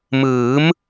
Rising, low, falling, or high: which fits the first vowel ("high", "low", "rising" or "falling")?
rising